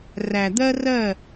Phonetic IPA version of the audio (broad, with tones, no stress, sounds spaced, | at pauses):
r æ˨ d̪ ɜ˦ r ɜ˦˨